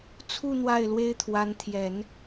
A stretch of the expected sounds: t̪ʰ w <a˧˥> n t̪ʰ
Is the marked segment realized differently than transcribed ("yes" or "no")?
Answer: no